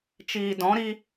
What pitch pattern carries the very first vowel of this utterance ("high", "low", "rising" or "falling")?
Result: low